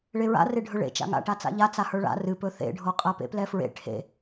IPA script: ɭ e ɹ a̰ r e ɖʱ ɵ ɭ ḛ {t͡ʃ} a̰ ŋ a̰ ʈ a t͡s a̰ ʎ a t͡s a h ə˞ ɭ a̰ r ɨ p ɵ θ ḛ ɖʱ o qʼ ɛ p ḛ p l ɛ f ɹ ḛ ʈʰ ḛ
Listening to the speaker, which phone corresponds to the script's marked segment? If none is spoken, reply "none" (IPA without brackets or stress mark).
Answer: t͡ʃ